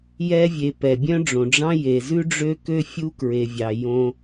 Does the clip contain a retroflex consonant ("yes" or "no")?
yes